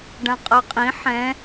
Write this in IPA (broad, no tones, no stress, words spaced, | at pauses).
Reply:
ɖãqʼɤqʼĩ ħɛ̃